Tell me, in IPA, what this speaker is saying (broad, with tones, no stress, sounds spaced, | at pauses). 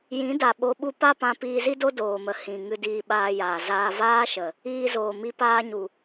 j ĩ˨˦ d a˨ ɓ o˧ ɓ u˦ p a˦ p ã˧ p iː˧ z i˦ d o˦ d oː˨ m ə˨ h ĩ˨ ŋ ɨ˧ d iː˧ ɓ aː˧ j aː˨ z aː˧ v aː˦ ʃ ə˨ | iː˧ z oː˨ m i˧ p aː˧ ɲ u˨